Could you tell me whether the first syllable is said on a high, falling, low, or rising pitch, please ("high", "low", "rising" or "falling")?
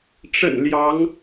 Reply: low